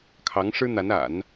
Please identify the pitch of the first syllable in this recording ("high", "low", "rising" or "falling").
rising